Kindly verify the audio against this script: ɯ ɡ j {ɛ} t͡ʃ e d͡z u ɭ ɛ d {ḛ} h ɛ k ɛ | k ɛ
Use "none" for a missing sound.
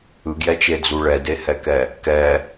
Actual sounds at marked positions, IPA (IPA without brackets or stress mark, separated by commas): ɛ, e